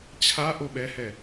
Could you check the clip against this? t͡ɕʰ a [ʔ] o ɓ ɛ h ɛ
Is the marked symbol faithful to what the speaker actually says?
yes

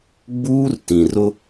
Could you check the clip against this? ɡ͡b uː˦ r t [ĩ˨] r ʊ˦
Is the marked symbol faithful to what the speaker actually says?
yes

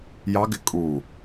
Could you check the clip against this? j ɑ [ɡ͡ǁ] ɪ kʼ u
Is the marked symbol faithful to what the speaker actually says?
no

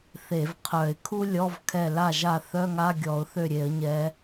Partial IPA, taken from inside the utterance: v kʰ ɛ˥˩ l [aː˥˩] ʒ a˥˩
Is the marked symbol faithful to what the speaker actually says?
no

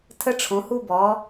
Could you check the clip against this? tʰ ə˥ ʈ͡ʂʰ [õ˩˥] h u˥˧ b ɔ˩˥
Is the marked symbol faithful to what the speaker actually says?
yes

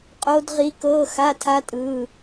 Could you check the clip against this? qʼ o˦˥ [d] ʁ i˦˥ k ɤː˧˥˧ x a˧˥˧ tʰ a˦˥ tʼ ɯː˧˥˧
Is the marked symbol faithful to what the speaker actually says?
yes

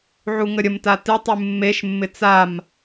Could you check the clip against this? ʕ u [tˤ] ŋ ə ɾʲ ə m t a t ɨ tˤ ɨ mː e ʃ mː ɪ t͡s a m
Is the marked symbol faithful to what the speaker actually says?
no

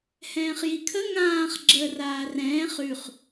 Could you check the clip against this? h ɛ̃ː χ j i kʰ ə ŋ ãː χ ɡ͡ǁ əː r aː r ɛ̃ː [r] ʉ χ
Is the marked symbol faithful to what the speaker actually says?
no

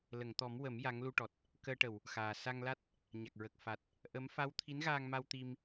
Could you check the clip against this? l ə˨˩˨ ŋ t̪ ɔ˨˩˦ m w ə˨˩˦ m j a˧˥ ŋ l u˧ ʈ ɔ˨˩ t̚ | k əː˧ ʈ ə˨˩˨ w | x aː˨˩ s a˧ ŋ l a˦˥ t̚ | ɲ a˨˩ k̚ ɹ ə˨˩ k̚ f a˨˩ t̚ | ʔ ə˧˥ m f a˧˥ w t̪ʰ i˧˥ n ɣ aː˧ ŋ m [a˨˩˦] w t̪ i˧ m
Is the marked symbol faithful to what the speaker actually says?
no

